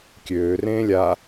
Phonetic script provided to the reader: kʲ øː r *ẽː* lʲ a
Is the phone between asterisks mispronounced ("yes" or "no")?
no